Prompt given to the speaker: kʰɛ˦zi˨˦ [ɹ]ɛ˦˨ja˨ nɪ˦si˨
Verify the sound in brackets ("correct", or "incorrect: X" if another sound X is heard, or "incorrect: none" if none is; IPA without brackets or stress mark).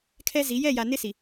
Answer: incorrect: j